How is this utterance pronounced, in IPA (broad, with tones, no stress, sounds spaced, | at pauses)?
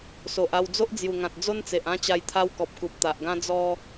s o˨ ʔ a˧ w d͡z o˦ ʔ d͡z j u˨˩ ŋ ã˨ t̚ d͡z o˦ n t͡s e˨ ʔ ã˥˧ t͡ɕ a˧ j t̪ʰ a˦ w k ɔ˨ p̚ k u˨ p̚ t̪ a˨ ʔ ɡ ã˦ d͡z ɔ˧